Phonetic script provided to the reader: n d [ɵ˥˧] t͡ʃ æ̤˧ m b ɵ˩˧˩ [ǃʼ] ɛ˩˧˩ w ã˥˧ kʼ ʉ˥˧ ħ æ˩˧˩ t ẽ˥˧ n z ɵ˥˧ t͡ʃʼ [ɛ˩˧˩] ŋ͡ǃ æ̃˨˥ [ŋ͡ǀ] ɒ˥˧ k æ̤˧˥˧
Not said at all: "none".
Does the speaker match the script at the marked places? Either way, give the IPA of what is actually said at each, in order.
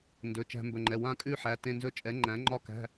ɵ˩˧˩, ŋ͡ǃ, ɛ˨˥, ŋ͡ǃ

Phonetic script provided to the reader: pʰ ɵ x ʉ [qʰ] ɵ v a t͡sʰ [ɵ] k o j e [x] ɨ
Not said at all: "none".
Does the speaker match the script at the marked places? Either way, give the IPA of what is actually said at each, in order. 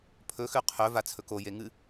qʰ, ɵ, ŋ

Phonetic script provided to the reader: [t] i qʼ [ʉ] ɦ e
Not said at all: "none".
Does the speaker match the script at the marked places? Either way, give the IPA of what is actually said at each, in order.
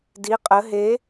d, ə

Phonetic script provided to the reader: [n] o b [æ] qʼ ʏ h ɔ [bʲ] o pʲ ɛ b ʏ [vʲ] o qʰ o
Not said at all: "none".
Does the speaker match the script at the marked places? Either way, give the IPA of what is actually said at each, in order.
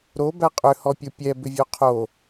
ɾ, æ, pʲ, vʲ

